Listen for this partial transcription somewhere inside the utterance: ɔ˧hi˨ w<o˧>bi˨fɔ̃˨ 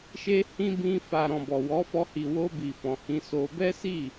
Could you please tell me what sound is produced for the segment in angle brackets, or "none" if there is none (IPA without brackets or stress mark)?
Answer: o˧